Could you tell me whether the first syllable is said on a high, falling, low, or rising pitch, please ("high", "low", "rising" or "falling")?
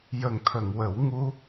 low